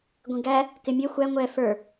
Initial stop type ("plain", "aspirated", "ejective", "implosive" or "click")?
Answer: plain